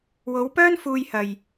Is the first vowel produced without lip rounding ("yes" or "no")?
no